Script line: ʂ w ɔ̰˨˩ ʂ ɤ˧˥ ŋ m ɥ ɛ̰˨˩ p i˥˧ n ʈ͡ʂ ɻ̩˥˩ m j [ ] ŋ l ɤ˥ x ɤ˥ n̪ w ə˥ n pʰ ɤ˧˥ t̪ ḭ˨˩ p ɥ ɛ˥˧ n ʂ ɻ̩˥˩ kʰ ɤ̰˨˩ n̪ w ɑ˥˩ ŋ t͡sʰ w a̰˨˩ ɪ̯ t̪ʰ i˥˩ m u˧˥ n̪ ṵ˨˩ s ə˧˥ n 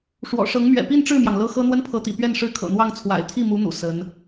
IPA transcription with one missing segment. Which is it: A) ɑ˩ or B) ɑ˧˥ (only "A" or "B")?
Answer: A